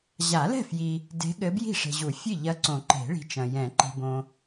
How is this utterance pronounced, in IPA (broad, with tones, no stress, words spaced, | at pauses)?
ʑa˨˩˦lɛ̤˥˩ fji˨ | de̤˧˥ɠɘ˧˥ bji̤˥˩ʂe̤˨ʑu˨˩˦ fʲɨ˥˩ʎɐ˧˥ǀõ˨˩˦ǃe̤˨˩˦ ɭi̤˧˥t͡ʃɐ̃˨ jɛ̃˨˩˦ǃi̤˨bõ˨